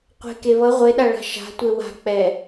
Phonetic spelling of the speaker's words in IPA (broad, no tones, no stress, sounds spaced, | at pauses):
qʷ e̤ k e β ʌ ʁʷ e ɗ a ɭ a̤ ʃ a̤ tʷ e w a̤ k͡p ɛ